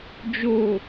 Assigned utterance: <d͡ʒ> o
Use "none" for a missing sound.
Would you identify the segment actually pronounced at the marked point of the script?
d͡ʒ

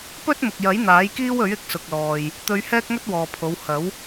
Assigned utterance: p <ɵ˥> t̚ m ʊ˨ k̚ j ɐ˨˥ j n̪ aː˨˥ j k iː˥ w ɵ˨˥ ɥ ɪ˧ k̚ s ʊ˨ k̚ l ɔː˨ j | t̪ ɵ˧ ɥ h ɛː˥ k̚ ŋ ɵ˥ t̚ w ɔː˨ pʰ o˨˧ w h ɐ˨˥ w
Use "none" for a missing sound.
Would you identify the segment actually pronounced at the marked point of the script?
ɵ˥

